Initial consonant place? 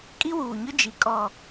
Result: velar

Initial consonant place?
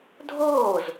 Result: alveolar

